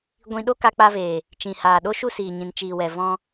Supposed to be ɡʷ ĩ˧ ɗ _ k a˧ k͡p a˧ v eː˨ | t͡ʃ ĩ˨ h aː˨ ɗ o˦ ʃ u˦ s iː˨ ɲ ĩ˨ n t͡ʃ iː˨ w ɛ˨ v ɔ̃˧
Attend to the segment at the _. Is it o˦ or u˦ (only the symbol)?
o˦